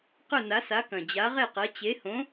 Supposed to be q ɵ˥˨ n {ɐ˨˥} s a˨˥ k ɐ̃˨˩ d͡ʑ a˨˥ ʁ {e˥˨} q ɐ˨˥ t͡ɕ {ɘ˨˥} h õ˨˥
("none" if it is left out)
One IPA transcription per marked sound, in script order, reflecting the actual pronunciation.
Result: a˨˥, e˥˨, e˨˥

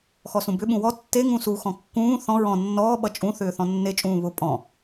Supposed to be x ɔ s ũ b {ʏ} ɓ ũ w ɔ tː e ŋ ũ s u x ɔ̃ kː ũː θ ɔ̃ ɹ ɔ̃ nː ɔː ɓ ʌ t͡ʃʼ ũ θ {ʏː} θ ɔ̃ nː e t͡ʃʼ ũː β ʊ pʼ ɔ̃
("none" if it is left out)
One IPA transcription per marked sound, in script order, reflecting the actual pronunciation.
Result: ʏ, ʏː

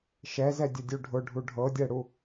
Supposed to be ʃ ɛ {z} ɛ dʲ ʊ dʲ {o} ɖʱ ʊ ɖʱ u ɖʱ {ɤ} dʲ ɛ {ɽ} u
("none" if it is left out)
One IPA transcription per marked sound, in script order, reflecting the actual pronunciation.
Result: z, u, ɤ, ɽ

